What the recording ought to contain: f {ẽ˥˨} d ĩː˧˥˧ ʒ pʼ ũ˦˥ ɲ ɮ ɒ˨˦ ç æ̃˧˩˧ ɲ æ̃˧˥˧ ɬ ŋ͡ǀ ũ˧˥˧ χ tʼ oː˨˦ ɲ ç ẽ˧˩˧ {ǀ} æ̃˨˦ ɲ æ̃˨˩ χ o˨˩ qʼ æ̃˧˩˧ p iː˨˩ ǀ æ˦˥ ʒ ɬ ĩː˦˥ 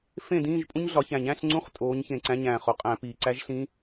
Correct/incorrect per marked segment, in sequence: correct, correct

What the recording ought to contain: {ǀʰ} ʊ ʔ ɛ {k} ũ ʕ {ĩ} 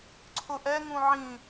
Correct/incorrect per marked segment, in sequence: correct, incorrect, correct

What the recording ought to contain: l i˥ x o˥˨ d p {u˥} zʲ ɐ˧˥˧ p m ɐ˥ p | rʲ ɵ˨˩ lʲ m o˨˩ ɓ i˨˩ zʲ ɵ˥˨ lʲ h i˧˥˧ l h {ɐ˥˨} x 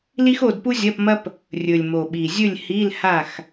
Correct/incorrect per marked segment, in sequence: correct, incorrect

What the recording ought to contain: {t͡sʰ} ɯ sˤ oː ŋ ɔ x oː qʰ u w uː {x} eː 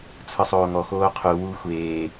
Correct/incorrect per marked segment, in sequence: correct, incorrect

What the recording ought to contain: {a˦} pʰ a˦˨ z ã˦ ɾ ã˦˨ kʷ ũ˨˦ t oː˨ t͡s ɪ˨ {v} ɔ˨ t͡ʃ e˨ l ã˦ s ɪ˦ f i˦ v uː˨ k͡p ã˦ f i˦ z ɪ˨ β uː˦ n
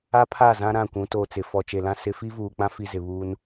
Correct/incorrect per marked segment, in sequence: correct, incorrect

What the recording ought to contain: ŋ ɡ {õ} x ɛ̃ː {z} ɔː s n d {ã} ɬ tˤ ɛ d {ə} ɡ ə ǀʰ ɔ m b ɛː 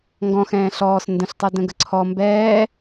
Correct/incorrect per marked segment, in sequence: incorrect, incorrect, incorrect, incorrect

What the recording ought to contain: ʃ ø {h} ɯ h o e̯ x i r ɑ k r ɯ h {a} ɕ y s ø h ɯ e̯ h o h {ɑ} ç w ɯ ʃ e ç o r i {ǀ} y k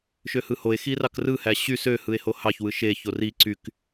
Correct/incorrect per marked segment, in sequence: correct, incorrect, correct, correct

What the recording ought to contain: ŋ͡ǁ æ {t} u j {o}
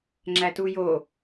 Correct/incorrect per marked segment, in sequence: correct, correct

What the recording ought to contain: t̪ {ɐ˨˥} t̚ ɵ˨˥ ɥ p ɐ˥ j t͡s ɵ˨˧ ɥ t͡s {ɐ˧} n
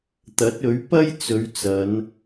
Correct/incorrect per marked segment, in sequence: correct, incorrect

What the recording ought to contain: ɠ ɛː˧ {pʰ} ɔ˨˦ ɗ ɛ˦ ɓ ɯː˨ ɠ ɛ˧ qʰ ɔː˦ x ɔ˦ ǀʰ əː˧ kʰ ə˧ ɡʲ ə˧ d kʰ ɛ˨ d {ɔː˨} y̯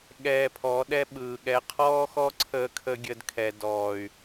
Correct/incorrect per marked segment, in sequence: correct, correct

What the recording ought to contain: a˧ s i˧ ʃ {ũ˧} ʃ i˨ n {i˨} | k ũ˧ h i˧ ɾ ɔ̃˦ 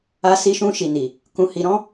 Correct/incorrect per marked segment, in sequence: correct, correct

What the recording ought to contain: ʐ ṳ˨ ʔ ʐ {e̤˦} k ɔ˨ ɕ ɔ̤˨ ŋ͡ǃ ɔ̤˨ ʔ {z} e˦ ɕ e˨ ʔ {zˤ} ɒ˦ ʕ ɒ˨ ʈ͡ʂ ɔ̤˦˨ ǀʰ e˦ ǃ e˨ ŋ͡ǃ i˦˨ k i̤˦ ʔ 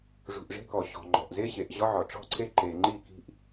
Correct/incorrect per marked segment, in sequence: correct, correct, incorrect

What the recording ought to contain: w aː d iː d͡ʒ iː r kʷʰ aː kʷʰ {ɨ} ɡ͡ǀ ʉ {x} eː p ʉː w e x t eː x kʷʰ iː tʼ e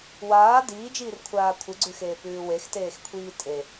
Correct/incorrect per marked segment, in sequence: correct, correct

